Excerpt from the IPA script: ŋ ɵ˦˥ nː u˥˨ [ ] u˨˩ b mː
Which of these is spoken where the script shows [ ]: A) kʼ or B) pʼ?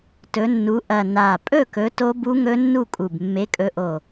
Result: A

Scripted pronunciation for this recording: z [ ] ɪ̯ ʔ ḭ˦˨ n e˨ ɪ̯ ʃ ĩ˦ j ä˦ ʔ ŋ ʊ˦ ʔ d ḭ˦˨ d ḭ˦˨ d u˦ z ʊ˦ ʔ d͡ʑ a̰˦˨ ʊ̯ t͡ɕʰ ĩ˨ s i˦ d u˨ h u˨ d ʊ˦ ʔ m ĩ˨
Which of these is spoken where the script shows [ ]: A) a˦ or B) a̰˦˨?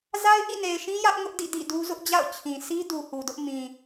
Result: A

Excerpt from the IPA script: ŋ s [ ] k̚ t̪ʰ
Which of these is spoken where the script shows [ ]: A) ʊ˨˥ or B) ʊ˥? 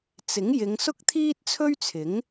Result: B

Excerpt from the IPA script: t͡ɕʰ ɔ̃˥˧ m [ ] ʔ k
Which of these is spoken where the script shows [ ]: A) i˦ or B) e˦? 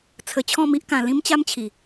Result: A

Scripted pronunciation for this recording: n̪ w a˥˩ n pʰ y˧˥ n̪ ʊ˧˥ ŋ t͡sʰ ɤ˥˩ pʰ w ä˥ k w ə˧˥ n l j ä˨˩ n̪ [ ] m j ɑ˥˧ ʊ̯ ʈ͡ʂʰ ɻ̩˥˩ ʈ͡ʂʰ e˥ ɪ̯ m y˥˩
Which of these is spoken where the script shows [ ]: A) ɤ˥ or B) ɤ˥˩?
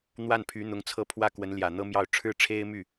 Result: A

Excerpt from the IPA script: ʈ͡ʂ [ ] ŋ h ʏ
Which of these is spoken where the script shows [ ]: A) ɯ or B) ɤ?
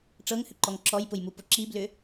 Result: B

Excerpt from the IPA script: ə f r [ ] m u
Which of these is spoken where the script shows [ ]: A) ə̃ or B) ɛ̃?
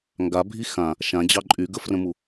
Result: A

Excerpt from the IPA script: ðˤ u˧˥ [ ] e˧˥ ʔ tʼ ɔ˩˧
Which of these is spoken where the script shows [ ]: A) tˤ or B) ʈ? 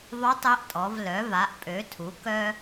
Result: A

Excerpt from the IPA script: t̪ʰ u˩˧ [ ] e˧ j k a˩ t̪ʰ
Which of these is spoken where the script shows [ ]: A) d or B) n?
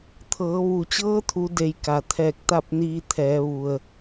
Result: A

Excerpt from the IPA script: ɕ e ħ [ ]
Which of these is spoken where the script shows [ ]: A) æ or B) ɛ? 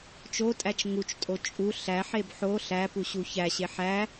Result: A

